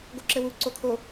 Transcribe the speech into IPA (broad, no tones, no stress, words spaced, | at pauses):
ɡoǁɘwu ǀokʰo